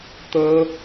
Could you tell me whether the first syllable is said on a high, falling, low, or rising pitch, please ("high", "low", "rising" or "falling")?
high